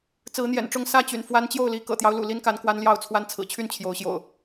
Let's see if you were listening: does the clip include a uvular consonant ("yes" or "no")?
no